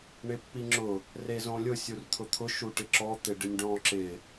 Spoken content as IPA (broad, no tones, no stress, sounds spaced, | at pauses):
ɳ ɪ pː i ŋ͡ǁ ʊ | r e z õ lʲ ʊ sʲ u r t̪ʰ ʊ t̪ʰ ʊ ʃ u ʈ ɪ ǁ ɔ t̪ ɪ ɖ ɪ nʲ ɖ ɔ̃ ǁ ɪ